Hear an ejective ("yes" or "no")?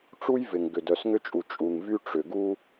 yes